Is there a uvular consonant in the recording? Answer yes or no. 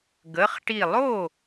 yes